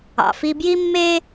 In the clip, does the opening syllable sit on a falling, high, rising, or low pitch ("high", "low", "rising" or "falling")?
low